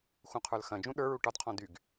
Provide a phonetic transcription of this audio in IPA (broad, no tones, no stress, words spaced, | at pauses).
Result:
xũqʰə˞lxɐ̃d͡ʒũ ɗə˞ɹu ʈɒdqʰɔ̃ dyɡ